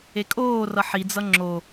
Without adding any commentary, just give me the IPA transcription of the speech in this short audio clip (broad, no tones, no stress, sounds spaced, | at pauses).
e kʼ oː r ʌ ħ i d͡z ʌ ŋ͡ǁ o